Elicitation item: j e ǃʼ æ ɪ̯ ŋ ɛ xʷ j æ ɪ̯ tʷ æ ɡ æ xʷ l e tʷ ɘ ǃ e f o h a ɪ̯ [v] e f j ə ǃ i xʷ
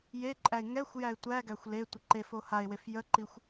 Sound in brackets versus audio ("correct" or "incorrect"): incorrect